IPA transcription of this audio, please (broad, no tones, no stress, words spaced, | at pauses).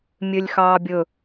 mʲølʲxɑːbʲɵ